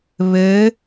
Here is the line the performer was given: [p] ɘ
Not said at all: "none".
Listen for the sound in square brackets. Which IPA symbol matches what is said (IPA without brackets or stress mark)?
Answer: β